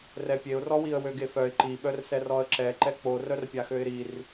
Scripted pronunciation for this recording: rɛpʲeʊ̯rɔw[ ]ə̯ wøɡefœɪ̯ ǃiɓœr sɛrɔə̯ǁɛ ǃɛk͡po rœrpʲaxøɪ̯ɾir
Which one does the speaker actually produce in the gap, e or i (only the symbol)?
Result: i